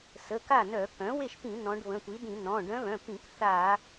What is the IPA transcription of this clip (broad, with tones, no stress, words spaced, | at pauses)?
sə˩˧˩ka˥˩nœ˧˩˧ kœ̃˩˥we˥˩ʃpĩ˧˩˧ nɔ̃˧˥ɖ βə̃˩˧˩tʷi˩˥dĩ˧˩˧ nɔ̃˩˧˩ ɖœ̃˧˥βœ̃˩˧˩pĩ˧˩˧k θa˧˩˧